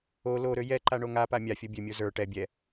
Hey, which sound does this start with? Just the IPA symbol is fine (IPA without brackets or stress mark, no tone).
o